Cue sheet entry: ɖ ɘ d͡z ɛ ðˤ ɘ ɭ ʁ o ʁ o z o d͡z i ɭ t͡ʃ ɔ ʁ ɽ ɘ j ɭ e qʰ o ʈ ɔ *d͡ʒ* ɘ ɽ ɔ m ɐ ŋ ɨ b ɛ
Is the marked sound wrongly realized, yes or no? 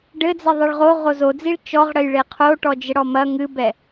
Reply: no